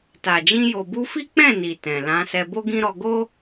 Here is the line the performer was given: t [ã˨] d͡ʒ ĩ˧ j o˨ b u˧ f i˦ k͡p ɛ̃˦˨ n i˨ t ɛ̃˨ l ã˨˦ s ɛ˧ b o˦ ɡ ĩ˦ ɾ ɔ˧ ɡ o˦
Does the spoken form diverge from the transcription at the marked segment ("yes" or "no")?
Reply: yes